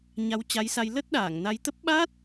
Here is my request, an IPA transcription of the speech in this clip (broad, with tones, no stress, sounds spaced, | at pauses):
ɲ a˧ w t͡ɕ a˨˦ j s a˧ j l ə˦˥ t̚ ɗ aː˧˩ ŋ n a˧ j t̪ ə˦˥ p̚ ɓ a˦˥ t̚